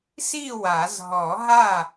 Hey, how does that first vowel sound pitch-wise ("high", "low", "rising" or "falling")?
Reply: falling